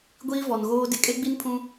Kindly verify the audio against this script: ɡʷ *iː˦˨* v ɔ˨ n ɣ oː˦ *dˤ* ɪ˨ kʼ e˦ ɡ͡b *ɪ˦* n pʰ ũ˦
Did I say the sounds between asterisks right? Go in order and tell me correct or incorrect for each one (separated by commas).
incorrect, incorrect, incorrect